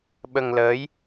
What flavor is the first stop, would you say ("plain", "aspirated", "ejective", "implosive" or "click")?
implosive